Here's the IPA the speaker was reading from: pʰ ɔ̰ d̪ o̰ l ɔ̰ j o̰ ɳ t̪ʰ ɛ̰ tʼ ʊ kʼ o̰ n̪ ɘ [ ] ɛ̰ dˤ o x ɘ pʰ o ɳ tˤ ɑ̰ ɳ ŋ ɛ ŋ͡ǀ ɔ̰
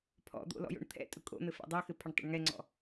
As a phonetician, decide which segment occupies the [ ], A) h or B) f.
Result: B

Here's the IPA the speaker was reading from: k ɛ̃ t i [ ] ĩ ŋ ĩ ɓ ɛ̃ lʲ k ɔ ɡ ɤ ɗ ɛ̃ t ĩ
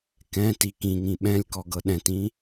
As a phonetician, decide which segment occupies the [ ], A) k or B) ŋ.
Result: A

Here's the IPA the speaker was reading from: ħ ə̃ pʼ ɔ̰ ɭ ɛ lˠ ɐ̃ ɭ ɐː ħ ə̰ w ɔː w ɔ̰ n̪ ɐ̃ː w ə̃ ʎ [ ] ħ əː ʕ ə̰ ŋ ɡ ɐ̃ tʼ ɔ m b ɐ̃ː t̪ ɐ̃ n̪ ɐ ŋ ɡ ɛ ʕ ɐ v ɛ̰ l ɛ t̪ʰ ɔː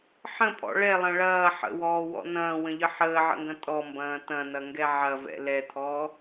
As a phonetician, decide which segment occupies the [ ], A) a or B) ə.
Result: B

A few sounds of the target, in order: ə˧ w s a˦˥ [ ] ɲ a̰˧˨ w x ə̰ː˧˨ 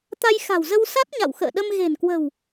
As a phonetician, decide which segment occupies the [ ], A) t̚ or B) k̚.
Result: A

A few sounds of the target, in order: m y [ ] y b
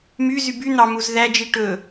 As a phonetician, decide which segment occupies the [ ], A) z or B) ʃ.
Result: A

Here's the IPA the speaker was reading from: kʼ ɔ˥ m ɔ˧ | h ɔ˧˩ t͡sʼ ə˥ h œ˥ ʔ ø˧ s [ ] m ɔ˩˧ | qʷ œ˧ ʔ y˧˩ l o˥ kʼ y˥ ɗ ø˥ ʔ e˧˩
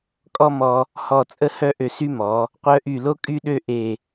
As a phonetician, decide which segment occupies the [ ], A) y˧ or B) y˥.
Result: B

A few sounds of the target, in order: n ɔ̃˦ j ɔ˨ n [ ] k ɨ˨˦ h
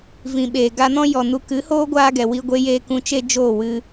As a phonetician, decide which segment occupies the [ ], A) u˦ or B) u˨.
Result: B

